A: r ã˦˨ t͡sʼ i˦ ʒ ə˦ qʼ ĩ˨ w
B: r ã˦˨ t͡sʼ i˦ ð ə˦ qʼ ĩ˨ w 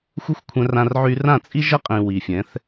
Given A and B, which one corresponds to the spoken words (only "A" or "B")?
A